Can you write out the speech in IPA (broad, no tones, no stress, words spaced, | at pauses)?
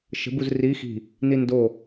ʃə̤ buzri xi̤ | nindo